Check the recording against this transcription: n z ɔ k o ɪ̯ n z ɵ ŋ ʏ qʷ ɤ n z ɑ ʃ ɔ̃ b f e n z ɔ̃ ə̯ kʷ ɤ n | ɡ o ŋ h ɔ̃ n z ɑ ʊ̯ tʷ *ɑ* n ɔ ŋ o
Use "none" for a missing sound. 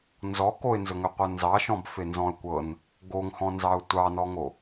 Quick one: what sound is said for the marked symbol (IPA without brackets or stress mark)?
ɑ